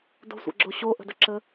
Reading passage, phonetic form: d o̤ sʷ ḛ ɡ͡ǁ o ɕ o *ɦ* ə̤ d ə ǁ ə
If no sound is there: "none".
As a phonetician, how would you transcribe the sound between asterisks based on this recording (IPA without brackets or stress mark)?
ʔ